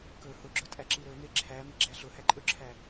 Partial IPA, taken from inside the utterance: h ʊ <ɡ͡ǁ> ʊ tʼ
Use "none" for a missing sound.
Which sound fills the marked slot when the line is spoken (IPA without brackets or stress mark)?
ɡ͡ǁ